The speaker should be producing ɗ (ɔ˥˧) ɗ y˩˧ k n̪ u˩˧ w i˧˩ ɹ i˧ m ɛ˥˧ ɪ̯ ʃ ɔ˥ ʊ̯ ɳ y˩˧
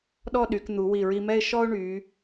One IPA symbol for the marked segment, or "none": ɔ˥˧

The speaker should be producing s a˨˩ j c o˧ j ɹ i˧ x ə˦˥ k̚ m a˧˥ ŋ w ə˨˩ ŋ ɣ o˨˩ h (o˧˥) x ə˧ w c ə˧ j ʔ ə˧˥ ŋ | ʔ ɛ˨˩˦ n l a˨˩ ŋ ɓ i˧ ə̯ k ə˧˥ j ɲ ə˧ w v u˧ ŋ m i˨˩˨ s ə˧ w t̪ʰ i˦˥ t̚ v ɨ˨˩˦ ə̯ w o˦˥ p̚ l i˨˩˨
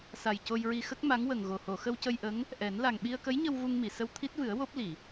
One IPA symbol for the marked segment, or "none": o˨˩˨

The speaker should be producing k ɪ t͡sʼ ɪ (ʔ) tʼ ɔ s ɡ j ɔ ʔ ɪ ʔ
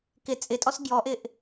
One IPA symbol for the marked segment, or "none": none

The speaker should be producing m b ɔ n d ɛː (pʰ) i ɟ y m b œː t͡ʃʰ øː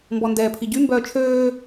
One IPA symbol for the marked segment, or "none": pʰ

